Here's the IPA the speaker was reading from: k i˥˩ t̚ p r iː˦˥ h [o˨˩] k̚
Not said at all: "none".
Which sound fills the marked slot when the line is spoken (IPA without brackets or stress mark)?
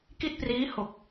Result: o˨˩